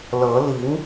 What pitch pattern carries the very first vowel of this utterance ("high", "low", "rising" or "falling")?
rising